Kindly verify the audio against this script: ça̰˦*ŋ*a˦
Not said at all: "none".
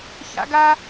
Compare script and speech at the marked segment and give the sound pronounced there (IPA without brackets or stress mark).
ɡ